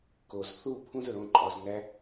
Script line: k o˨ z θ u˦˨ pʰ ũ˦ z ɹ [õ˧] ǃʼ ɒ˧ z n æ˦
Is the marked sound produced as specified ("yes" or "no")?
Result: yes